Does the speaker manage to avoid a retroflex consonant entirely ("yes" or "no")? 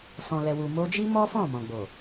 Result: yes